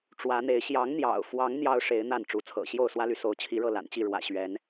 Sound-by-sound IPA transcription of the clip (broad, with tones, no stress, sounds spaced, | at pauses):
ʈ͡ʂ w ä˨˦ n̪ e˨˦ ɪ̯ ɕ j ɑ˨˦ ŋ n̪ j ɑ̰˨˩ ʊ̯ f w ɑ˨˦ ŋ n̪ j ɑ˦ ʊ̯ ʂ e˨˦ ɪ̯ n̪ a˥˨ n ʈ͡ʂ u˨˦ t͡sʰ ɤ̰˨˩ ɕ j o˥˨ ʊ̯ s w ä˦ l y˨ s o˨˦ ʊ̯ t͡ɕʰ i˨˦ ɻ ɤ˥˨ l a̰˨˩ n t͡ɕ i˥˨ ɻ w ä̰˨˩ ɕ ɥ ɛ˨˦ n